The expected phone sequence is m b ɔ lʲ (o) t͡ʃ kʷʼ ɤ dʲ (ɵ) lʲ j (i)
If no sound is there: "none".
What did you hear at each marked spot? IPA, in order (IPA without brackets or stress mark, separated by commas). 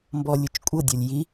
u, ɔ, i